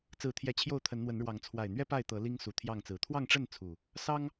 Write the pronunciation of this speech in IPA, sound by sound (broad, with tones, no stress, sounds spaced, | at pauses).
t͡s ɹ̩˨˦ t̪ʰ j ɛ˨˦ t͡ɕʰ j o˥˨ ʊ̯ t̪ʰ ə˨˦ n n̪ w ə˨˦ n ɻ w ɑ˨˦ ŋ t͡sʰ w a˨˩ ɪ̯ n̪ ɥ ɛ˦ p a˥˨ ɪ̯ t̪ ɤ˨˦ l i˦ ŋ s u˨˩ t̪ʰ j ɑ˥˨ ŋ t͡s ɹ̩˨˩ t̪ʰ w ɑ˥˨ ŋ ʈ͡ʂ ə˥˨ n t͡sʰ u˨˩ | s ɑ˦ ŋ